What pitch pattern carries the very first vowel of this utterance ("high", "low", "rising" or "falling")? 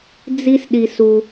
high